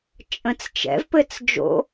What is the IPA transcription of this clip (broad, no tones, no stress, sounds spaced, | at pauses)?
t͡ʃʼ ə̃ t͡s t͡ʃ ɛ̰ v p ɘ t͡s d͡ʒ o̰